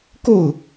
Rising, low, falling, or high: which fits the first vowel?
falling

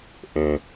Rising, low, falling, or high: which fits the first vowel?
low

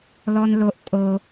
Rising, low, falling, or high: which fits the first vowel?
high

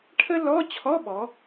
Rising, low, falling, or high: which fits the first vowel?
high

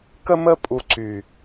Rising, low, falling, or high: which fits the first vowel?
high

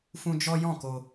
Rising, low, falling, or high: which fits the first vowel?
high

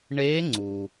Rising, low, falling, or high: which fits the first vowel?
rising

